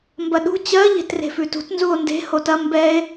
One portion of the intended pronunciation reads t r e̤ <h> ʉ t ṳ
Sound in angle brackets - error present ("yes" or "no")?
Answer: yes